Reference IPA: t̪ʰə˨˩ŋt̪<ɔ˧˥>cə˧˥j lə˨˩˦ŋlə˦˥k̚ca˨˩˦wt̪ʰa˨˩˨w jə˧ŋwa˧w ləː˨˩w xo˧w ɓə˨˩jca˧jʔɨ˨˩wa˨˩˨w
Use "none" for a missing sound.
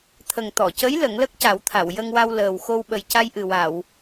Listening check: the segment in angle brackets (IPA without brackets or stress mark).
ɔ˨˩˨